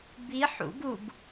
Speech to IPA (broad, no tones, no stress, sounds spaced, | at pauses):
b i ħ ṵ ɡ u ɡ